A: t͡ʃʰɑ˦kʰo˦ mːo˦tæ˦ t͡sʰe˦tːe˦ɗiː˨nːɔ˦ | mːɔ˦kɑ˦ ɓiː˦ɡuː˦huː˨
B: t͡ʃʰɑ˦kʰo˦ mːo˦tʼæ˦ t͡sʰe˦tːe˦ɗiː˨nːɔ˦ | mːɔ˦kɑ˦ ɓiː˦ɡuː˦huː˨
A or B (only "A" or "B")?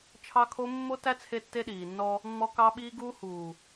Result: A